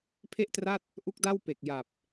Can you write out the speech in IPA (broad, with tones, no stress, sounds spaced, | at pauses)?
pʰ e˥˩ ʔ t r a˥˩ t̚ | ʔ u˦˥ k̚ d a˥˩ w p e˨˩ k̚ j a˨˩ p̚